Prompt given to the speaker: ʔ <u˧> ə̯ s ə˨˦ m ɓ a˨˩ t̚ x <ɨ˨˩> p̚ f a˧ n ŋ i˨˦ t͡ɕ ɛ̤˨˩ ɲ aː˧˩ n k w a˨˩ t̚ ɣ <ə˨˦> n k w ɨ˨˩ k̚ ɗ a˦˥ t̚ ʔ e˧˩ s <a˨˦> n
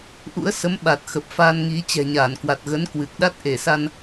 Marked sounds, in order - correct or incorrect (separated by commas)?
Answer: incorrect, incorrect, correct, incorrect